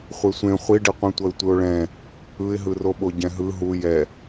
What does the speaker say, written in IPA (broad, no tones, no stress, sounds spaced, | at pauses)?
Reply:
χʷ e sʷ ẽ χʷ i ɖ i qʷ ẽ tʷ ʌ ɪ̯ tʷ ɯ ʊ̯ ɭ ɛ̃ | ɯ ɪ̯ ɦ ɯ r o ɓ o ɟ ɛ̃ ɦ ɯ ɦ u j ɛ